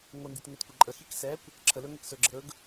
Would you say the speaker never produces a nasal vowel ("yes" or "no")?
yes